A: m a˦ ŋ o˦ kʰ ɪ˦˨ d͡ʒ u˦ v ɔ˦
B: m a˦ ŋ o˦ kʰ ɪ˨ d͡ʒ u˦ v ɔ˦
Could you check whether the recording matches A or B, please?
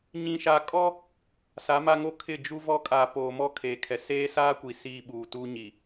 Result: A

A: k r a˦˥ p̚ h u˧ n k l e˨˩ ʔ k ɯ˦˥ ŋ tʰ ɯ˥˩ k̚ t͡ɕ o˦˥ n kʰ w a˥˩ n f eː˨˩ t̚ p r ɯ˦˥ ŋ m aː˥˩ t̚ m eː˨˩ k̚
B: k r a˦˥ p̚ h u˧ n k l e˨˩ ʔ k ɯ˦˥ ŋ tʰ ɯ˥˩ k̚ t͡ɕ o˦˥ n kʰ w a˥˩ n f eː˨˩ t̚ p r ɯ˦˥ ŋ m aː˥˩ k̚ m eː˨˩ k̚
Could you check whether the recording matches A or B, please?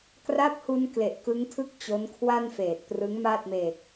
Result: A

